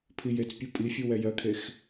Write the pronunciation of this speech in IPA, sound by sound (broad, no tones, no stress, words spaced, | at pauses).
pʰijet͡spʲu pʼifʲu wɛjɜkʰex